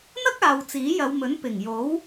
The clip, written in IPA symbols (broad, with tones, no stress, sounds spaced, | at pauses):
n̪ ɐ˥ k̚ aː˨ w t͡s iː˨˥ j ɐ˨˧ w m ɵ˨˥ n p ɪ˨˩ ŋ j o˨˥ w